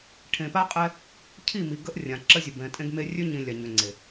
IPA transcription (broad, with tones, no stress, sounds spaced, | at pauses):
ʈʰ ẽ˨ p a˦ qʼ ɛ˦ | cʰ i˦˨ m i˨ ɡ ə˦ ʔ rʲ ã˨ ǁ ə˦ zʲ ə˨ b ɛ̃˨ tʼ ẽ˦ ɡ m e˦ rʲ ø˦ ɲ ĩ˨ lʲ a˨ ɲ ø˨ ŋ͡ǀ e˨